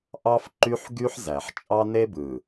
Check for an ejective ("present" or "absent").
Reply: present